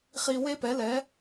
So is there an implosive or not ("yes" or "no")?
no